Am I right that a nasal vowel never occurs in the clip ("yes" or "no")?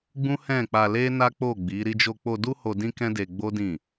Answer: no